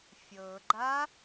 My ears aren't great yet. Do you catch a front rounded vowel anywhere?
no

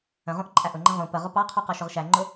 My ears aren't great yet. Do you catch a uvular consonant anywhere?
yes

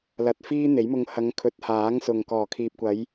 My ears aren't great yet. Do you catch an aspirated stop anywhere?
yes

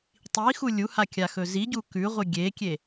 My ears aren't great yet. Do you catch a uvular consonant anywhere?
yes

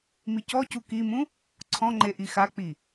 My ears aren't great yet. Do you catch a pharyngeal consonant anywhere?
no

